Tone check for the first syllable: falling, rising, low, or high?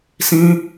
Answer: high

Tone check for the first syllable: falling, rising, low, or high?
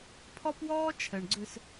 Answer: high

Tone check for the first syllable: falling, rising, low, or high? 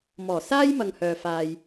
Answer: low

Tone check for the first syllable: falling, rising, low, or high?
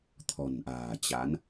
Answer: low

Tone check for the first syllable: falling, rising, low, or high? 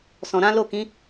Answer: low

